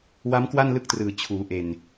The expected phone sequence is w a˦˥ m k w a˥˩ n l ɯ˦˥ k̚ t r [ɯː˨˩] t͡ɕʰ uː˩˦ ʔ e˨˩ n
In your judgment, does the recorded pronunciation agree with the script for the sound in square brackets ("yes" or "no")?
yes